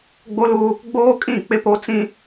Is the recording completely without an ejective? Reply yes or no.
no